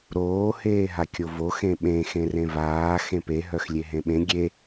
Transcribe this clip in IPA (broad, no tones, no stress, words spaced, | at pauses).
ɾoː heːɦakʲovo xẽɓẽ xẽrẽvaː xẽpe ɦœxlʲeɦẽɓẽ ɡʲe